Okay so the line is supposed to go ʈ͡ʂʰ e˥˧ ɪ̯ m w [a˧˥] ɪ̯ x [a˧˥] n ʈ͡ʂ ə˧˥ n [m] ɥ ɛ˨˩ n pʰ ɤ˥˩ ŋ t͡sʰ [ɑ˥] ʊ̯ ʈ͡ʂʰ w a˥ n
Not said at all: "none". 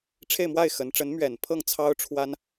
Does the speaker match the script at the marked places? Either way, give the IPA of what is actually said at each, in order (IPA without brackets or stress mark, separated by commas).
a˥˩, ə˧˥, m, ɑ˥